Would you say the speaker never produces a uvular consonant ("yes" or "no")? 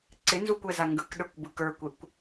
yes